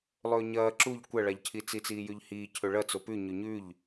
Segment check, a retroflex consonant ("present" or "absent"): present